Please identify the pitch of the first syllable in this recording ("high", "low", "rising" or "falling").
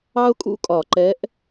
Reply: high